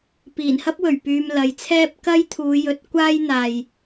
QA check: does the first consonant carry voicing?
no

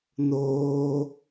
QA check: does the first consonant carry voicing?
yes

